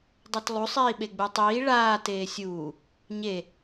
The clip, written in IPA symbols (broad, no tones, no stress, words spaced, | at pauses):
dˤʌtlˠusˤ iːɓeɡ͡butˤiː ɭaː teːsʲuː | ɲe